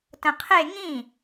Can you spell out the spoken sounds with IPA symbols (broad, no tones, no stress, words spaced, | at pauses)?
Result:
tə̃qʰe ŋĩ